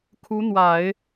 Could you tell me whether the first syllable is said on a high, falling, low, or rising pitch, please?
rising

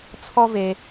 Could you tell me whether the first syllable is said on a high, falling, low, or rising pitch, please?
high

